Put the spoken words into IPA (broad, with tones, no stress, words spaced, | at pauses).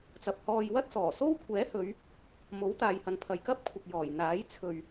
t͡sɐ˨p̚hɔː˧j wɐ˥t̚sɔː˨˩so˥w kʷʰɛː˨˥hɵ˨˧ɥ | mo˨˥w t̪aː˨jhɐ˨npʰɐ˨j kɐ˥p̚kʷʰɪ˨k̚ jɔː˨˩jn̪aː˨˥j t͡sʰɵ˨ɥ